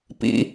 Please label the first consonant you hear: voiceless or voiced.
voiceless